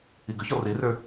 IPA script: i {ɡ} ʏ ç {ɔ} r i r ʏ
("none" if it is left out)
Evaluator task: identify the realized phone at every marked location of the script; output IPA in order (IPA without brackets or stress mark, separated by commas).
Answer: ɡ, ɔ